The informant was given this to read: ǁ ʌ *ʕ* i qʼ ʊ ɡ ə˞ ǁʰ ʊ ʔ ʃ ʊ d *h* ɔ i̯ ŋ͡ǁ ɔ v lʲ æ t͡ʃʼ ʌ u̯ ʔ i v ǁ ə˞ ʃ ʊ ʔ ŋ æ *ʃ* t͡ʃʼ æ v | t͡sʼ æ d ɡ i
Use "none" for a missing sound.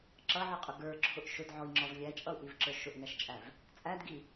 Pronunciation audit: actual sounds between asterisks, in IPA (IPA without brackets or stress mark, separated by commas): ʕ, ʕ, ʃ